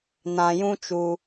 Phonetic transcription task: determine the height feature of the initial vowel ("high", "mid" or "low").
low